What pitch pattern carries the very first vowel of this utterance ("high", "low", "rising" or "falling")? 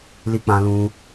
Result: high